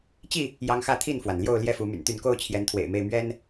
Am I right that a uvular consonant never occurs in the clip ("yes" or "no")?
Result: yes